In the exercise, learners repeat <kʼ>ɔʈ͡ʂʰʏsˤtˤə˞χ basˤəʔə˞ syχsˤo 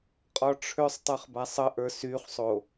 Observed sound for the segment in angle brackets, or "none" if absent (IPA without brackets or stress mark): qʼ